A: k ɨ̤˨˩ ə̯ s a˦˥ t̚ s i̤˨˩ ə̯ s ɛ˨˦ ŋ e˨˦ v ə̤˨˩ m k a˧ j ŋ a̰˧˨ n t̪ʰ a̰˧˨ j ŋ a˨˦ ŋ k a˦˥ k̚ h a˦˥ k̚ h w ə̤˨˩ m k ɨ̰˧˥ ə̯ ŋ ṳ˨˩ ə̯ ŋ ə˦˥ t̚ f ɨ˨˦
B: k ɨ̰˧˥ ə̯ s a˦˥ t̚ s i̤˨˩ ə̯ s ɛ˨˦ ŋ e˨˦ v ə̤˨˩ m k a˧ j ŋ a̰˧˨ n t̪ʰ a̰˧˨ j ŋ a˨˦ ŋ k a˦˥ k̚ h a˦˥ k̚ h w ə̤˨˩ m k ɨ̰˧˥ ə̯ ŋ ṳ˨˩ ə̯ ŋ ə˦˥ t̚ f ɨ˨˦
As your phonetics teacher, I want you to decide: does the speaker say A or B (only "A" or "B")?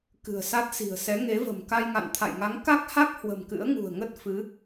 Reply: A